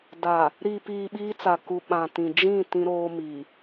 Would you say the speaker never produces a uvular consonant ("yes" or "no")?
yes